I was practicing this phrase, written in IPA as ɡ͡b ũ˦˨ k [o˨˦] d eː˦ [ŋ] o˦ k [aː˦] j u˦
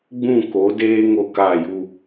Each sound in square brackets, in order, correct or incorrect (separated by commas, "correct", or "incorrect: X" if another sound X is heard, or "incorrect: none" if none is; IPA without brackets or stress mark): correct, correct, incorrect: aː˦˨